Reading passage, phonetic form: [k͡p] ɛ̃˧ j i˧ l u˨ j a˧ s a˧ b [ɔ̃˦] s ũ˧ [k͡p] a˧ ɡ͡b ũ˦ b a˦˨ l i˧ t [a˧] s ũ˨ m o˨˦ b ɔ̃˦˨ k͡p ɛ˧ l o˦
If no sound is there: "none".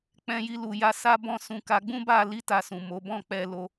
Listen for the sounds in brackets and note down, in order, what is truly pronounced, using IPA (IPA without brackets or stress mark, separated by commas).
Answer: k͡p, ɔ̃˦, k, a˧